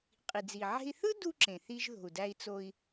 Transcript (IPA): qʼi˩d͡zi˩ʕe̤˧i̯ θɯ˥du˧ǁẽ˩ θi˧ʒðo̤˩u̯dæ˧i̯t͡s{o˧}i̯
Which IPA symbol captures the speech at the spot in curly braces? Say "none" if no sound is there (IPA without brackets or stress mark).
o˧